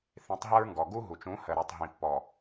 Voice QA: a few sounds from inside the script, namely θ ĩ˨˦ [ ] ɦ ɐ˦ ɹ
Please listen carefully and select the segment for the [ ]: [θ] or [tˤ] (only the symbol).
tˤ